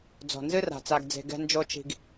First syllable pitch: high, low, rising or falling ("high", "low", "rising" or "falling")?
low